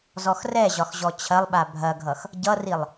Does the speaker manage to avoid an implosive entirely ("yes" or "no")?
no